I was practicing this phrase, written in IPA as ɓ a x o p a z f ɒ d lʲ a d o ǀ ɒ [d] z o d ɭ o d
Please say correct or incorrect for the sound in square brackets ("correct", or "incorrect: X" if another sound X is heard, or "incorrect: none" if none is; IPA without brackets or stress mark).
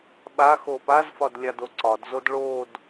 correct